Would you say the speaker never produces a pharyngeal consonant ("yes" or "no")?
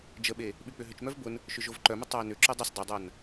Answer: yes